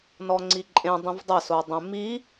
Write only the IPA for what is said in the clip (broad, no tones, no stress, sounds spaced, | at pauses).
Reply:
n ɔ ŋ͡ǀ i ǃʼ ẽ dˤ ĩ v dˤ ɛ s o dˤ ẽ m i